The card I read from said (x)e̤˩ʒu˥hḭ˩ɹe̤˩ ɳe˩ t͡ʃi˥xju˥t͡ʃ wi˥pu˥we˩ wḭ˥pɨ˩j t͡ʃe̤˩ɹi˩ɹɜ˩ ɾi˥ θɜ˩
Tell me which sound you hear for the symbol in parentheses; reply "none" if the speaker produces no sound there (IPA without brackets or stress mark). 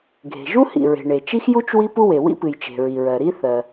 ɡʱ